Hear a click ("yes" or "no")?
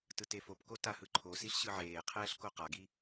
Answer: yes